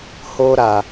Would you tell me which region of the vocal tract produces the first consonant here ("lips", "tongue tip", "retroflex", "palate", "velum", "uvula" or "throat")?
throat